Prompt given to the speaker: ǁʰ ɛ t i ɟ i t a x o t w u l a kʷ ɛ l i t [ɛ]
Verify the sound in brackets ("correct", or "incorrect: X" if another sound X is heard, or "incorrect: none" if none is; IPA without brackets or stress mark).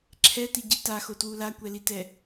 correct